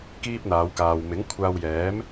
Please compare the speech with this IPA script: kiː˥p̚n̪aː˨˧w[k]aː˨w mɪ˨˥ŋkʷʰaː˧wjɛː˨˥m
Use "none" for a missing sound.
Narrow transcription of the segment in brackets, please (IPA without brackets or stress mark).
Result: k